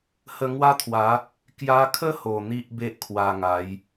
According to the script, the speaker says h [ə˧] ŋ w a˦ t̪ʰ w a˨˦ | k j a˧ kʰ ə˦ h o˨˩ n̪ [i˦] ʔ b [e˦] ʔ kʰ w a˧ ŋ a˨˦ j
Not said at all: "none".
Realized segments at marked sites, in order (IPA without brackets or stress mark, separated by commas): ə˧, i˦, e˦